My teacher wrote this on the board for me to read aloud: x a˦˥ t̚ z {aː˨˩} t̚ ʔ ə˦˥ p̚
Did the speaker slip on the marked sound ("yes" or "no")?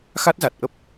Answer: yes